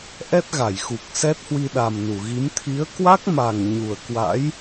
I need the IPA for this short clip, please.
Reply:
ʔ ɛ˦˥ t̚ ɣ a˧˩ j x u˨˩ k̚ s ɛ˦˥ t̚ h w i˧ ɗ a˨˩ m n u˧˩ ɣ i˨˦ m t̪ʰ i˨˦ ə̯ k w a˦˥ k̚ m a˨˩ ŋ ɲ u˨˩ ə̯ k w a̰˧˥ j

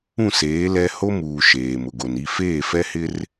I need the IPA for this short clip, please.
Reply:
ũ˦˨ s eː˨˦ l ɛ˦ h o˦ m uː˨ ʃ eː˨ m ʊ˨ ɡ o˨ n i˦˨ f eː˦˨ f ɛ˦ h ɪ˦ r

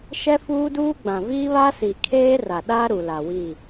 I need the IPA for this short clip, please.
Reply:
ʃ ɛ˦ f uː˦ d uː˦ ɡ͡b ã˨ v iː˦ β a˦ s i˨ kʰ eː˦ r a˨ ɗ a˦ ɾ u˨ l a˨ w i˦˨

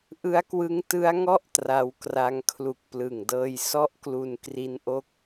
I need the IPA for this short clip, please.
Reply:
ʔ ɯ˦˥ a̯ k w ɯ˦˥ ŋ t ɯ˦˥ a̯ ŋ ɔ˥˩ ʔ t r a˦˥ w k r a˦˥ ŋ kʰ l u˨˩ k̚ p l ɯ˨˩ ŋ d ɤː˧ j s ɔ˥˩ ʔ k l u˧ n k r i˦˥ n ʔ o˦˥ k̚

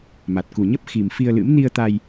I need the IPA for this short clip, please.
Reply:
m a˨˩ t̚ k u˨˩ ɲ ə˦˥ p̚ x i˨˩ m f i˧ ə̯ l ɨ̰˧˥ m n i˧ ə̯ t̪ a˧ j

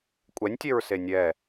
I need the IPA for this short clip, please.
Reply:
kʷʼ ɛ nʲ tʲ e ɹ s e nʲ ɛ

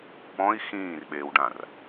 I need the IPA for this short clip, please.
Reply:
p ɔ̃ i̯ x ĩː r ɓ eː w ɖ ã r

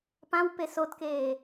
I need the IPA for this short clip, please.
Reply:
p ã w p e s o t k eː

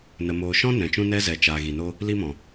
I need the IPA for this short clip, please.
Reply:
n ə˨ m oː˨ ʃ ɔ̃˦ n ɛ̃˨ t͡ʃ ũ˦ n ɛ˦ z ɛ˨ t͡ʃ aː˨ ɣ i˨ n o˦ | l i˧ m ɔ̃˨

